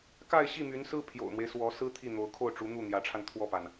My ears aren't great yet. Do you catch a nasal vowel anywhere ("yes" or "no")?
no